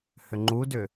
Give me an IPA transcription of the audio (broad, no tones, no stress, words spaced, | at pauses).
hʏŋ͡ǃudʏ